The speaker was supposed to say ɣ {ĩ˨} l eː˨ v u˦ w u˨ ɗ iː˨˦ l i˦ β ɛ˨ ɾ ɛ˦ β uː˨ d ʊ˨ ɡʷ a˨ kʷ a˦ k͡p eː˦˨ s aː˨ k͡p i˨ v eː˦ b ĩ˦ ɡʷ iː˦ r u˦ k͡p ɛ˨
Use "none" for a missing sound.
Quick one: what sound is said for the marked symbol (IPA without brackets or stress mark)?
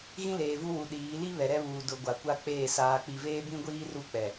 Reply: ĩ˦